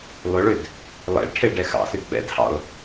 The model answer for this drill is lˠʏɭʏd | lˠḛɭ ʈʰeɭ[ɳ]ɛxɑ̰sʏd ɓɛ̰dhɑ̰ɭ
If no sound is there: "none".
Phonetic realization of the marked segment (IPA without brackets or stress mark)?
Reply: ɖ